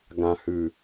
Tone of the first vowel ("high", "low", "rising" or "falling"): low